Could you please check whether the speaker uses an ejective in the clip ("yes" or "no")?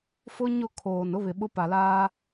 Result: no